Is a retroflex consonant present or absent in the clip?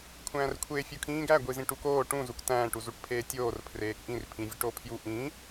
present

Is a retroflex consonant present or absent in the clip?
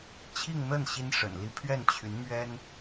present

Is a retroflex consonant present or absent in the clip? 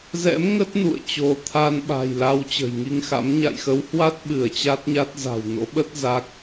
absent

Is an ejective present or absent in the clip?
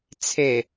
absent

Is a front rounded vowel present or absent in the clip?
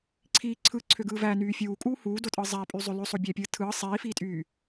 present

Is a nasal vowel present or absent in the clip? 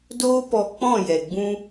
present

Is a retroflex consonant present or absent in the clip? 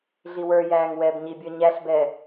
absent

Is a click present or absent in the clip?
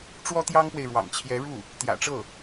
absent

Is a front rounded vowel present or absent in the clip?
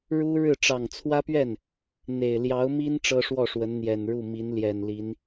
absent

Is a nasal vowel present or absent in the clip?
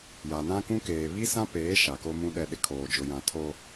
present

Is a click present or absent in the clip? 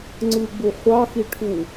present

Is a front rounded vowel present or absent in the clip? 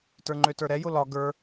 present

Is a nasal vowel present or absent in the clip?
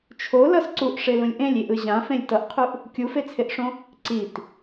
present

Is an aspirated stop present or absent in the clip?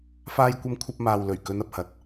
present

